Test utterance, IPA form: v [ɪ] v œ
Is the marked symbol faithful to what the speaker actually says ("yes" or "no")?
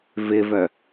yes